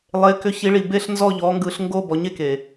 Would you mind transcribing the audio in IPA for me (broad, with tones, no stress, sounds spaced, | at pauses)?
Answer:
lˠ e˩˧ k ʏ˩˧ ç i˩˧ ɭ i˩ b e˦˨ ɬ n z ɔ˦˨ ʎ ɔ˩˧ ŋ ɡ ɯ˩˧ ɬ ŋ ɡ o˦˨ b ɔ˩˧ ɲ e˦˨ k e˩